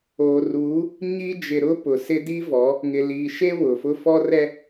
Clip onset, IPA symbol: oː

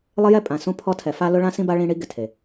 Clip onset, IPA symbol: lˠ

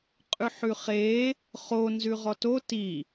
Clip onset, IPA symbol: qʼ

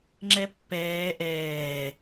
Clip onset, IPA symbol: ŋ͡ǁ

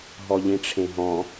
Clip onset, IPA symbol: ɦ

